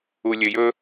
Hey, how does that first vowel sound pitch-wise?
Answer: low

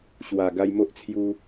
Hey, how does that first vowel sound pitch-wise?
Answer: low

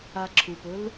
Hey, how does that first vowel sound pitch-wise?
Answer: low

